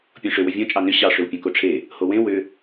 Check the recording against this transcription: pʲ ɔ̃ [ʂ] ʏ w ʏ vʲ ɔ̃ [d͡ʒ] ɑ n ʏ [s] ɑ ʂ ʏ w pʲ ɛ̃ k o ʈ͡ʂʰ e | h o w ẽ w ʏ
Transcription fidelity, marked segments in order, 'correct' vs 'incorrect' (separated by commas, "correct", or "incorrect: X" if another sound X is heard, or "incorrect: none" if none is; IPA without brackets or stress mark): correct, incorrect: t͡ʃʼ, incorrect: ɕ